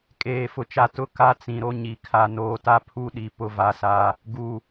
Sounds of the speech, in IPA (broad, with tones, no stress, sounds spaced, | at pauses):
kʼ eː˨ f ʊ˨ t͡ʃ a˨ t ʊ˦ k a˦ t͡s ĩ˨ ɾ o˦ ɲ i˨ kʰ a˨ n oː˨ t a˦ pʰ u˦ ɗ i˨ p ʊ˦ v a˦ s a˦ | ɡ u˨